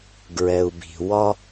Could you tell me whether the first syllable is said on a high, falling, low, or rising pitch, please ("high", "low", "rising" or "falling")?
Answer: low